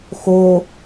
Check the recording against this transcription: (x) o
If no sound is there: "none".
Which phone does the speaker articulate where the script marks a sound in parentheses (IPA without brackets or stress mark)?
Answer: x